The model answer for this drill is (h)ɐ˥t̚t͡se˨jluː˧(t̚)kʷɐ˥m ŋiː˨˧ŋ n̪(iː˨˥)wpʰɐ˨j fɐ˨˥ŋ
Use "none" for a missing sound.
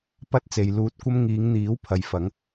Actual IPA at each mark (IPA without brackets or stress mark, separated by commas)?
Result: p, t̚, iː˨˥